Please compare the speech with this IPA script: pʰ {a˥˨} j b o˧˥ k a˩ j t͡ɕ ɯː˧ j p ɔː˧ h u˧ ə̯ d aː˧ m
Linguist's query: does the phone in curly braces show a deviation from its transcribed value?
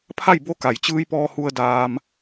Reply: no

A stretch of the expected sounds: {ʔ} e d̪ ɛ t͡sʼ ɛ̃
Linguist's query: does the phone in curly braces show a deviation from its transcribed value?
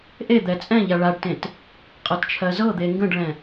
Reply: no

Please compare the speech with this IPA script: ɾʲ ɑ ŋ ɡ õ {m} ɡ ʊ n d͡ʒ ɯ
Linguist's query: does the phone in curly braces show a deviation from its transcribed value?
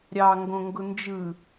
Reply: yes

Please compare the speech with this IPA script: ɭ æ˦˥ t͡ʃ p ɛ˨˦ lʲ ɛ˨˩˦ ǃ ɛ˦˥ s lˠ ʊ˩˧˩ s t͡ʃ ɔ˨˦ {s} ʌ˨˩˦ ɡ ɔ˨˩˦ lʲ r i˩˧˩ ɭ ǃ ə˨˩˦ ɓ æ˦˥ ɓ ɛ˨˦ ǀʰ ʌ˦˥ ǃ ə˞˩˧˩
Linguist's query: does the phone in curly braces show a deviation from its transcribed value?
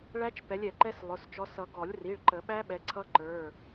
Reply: no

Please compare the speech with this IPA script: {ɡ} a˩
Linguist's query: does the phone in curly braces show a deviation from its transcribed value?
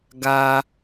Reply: no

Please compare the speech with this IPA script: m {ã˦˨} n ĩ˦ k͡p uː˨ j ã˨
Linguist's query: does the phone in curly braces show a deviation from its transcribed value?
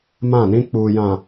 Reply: no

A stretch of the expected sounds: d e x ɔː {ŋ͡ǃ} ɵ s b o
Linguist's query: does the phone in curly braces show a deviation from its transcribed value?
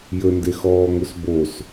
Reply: yes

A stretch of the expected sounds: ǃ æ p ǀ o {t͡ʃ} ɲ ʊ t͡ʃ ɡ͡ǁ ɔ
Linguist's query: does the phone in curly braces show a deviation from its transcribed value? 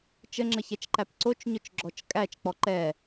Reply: no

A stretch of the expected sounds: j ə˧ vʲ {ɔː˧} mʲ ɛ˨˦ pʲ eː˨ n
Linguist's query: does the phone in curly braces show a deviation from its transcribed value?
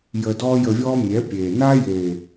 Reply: yes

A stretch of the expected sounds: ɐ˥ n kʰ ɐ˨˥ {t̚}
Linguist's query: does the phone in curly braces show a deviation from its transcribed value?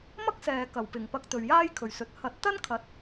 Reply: no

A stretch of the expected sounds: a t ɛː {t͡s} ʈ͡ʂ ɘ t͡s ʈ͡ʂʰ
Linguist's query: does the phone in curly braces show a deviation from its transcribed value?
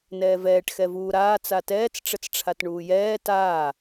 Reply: no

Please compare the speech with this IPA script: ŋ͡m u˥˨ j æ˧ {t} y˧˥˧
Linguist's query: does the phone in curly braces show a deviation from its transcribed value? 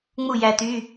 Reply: no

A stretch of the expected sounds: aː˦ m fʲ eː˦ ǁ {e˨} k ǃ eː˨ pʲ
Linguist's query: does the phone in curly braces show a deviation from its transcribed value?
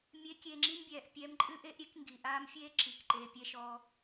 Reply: yes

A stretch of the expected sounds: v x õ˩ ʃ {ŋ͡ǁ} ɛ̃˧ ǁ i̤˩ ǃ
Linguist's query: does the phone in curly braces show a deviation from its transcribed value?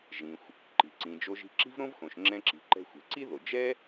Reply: no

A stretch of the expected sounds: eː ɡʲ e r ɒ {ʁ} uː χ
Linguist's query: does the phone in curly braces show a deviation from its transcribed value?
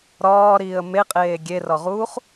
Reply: no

